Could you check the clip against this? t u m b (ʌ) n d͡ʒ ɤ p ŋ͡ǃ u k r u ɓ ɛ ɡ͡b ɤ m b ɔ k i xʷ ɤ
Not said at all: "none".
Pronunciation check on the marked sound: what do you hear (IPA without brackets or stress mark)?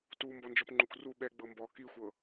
ɔ